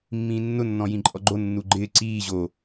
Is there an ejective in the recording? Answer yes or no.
yes